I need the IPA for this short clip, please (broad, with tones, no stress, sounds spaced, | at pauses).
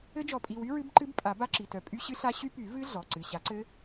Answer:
ɘ˦˥ d͡ʒ ɔ˨˩˦ pʼ i˩˧˩ w y˦˥ ɹ ɨ˦˥ b ǃ ɨ˦˥ b pʼ a˨˩˦ b a˦˥ ǁ i˩˧˩ t œ˨˩˦ pʼ y˦˥ ɕ ɨ˦˥ ɬ a˦˥ ɕ y˦˥ p y˨˩˦ v ɨ˦˥ ɮ ɔ˩˧˩ ǀ ɨ˩˧˩ ɕ a˨˩˦ ǀ ɘ˦˥